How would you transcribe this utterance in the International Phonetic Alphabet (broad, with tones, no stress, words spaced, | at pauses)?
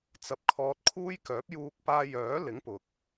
t͡sɐ˧p̚kʰɔː˧t̚kʰuː˥j kœː˨˥p̚juː˧k̚paː˧jœː˨˥ lɪ˨˥ŋpʊ˨k̚